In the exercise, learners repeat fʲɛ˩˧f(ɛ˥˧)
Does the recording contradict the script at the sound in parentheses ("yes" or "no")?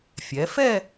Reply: no